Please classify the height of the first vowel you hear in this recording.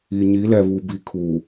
high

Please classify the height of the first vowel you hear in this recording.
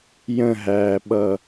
mid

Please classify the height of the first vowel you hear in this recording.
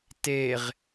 mid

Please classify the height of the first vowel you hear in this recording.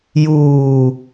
high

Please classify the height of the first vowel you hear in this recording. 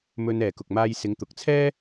mid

